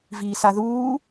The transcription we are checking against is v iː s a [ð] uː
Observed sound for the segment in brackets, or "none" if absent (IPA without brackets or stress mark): ð